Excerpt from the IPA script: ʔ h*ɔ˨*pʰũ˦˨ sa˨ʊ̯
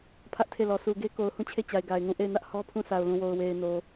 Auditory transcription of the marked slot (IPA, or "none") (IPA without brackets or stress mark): ɔ˦